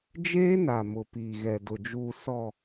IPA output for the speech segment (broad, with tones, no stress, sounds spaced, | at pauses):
d͡ʒ eː˦ n a˨ m ʊ˨ p iː˨ ɣ ɛ˨ d ʊ˨ d͡ʒ uː˨ s ɔ˨